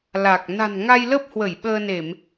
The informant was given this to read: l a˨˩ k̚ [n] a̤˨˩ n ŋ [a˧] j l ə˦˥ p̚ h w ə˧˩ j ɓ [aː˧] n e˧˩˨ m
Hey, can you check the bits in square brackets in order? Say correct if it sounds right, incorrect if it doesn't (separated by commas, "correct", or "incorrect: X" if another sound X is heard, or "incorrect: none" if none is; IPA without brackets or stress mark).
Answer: correct, correct, incorrect: əː˧